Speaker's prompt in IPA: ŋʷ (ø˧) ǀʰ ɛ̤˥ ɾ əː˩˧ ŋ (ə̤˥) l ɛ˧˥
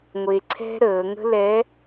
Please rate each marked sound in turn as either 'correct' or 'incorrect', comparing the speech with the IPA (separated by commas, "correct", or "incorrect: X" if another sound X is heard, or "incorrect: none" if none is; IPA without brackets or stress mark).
incorrect: e˧, correct